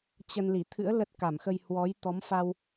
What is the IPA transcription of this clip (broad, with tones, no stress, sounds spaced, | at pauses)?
t͡ɕ ə˧ n l i˧˩ t̪ʰ ɨ̰˧˥ ə̯ l ə˦˥ t̚ k a˧˩ m x ə˧ j h w ɔ˨˦ j t̪ ɔ˨˦ m f a˧ w